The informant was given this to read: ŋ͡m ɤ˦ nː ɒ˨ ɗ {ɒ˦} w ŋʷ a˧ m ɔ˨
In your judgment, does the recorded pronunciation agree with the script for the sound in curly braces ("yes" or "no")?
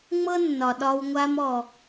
no